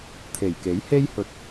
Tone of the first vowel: low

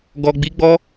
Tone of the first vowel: low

